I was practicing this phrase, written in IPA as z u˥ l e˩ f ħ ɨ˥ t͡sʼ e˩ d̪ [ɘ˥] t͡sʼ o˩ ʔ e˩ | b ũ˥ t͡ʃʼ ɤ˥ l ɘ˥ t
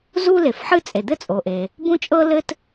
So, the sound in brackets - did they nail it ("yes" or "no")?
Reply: yes